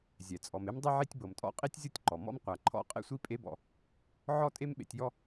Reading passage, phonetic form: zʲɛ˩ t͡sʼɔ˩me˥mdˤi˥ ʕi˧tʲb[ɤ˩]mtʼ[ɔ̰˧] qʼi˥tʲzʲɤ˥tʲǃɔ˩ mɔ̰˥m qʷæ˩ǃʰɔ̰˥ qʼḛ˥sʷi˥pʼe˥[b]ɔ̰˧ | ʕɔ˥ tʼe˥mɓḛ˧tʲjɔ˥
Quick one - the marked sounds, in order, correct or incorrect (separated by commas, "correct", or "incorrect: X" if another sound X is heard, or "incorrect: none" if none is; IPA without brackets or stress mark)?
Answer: correct, correct, correct